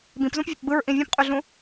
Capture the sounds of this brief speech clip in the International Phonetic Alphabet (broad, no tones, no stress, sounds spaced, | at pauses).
b ĩ p z ũ p vʲ o p b ɯ ɹ ʔ ĩ vʲ ɔ̃ p qʼ y ɮ ũ